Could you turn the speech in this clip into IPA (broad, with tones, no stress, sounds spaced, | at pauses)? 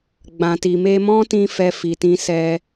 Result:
ɡ͡b ã˨ t i˨ m e˧ m ɔ̃˦ t ĩ˧ f ɛ˧ f i˨ t ĩ˧ s ɛ˧